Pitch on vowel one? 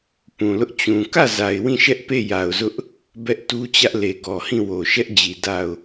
low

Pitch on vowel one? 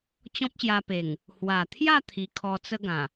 high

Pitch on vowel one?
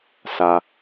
low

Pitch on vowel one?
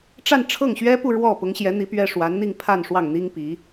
falling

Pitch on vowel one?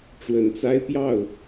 rising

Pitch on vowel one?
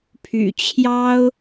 low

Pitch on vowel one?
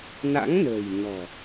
rising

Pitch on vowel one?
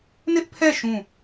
high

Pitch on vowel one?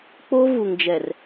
high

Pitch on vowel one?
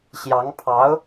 rising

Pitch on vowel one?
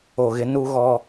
low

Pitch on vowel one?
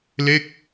falling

